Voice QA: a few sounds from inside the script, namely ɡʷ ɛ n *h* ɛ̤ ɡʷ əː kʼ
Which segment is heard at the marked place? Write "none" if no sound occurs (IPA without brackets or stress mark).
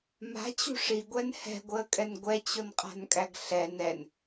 h